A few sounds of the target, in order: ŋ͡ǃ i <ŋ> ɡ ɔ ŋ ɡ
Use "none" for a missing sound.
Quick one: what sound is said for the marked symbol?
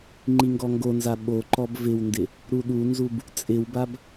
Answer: ŋ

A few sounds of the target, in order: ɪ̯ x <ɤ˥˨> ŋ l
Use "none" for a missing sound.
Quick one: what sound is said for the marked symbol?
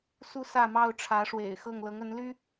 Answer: ɤ˥˨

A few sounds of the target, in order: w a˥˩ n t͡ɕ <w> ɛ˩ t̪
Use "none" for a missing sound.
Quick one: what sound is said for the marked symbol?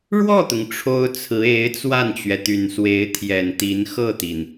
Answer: ɥ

